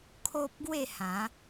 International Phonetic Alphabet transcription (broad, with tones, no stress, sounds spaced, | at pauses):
kʰ o˦ p̚ ɡ w e˥˧ h ã˨˦